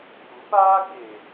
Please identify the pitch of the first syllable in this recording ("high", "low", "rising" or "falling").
rising